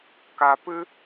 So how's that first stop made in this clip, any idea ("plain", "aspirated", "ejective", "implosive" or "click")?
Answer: plain